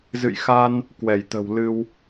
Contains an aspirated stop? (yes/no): no